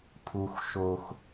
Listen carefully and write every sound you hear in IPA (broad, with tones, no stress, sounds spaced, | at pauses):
pʰ u˨ x ʃ o˨ x